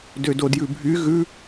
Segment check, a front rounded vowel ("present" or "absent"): present